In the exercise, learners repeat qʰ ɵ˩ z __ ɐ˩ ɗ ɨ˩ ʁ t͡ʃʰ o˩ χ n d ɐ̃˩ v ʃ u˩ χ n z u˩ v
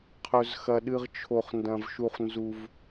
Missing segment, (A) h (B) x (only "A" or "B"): B